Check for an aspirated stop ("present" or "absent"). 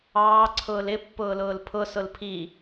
present